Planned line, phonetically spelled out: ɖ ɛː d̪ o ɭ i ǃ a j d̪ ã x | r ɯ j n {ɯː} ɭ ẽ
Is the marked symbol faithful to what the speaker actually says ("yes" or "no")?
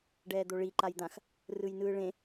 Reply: yes